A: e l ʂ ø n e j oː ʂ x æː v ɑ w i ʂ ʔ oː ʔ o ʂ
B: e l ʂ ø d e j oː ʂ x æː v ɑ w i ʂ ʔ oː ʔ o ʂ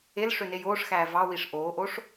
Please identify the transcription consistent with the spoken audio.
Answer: A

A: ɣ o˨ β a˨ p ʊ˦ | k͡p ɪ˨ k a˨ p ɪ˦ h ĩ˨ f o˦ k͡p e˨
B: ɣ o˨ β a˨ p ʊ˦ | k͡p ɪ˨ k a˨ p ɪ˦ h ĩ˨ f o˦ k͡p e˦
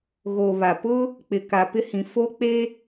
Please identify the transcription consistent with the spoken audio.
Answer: B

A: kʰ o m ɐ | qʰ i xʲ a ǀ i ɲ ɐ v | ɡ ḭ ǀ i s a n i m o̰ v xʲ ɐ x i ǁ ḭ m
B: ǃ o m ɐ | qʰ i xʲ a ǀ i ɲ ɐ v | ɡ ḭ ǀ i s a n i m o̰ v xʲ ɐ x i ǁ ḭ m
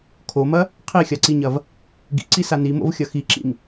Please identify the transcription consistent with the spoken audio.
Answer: A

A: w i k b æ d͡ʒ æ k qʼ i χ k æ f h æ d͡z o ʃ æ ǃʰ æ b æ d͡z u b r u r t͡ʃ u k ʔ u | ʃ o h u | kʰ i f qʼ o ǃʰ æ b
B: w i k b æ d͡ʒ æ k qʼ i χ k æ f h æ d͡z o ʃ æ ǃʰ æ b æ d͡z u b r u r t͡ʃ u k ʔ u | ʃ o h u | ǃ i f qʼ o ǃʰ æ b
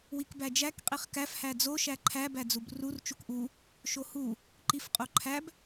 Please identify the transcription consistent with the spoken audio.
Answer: B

